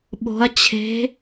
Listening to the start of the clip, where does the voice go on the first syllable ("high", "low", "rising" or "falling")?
rising